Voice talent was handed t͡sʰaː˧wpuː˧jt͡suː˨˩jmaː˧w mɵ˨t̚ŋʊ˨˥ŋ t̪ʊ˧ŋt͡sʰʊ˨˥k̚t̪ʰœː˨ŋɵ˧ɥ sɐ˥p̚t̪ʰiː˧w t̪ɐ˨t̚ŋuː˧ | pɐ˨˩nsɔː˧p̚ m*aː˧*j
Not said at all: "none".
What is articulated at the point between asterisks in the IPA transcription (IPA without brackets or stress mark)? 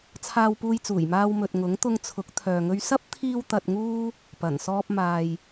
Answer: aː˨